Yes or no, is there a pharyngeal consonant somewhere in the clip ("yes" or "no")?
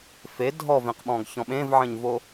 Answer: yes